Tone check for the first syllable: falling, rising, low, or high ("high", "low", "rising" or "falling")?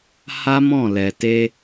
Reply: high